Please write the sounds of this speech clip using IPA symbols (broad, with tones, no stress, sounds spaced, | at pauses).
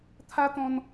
t̪ʰ a˦ t̪ ɔ̃˧ n